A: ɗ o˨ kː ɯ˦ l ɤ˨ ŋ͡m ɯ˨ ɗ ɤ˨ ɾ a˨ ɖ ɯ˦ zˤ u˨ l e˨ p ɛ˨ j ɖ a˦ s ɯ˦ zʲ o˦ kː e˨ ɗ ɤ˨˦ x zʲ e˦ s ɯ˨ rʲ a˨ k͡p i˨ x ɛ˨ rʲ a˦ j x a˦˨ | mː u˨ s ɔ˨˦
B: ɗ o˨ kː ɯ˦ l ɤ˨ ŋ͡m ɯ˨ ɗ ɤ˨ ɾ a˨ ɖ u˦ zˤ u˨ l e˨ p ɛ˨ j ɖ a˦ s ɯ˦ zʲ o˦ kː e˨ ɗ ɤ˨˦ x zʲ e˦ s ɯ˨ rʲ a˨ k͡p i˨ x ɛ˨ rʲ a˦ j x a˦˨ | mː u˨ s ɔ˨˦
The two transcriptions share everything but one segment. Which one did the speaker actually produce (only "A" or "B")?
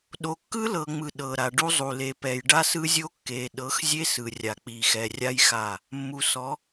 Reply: B